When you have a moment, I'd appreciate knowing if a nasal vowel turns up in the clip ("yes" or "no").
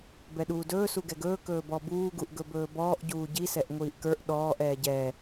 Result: no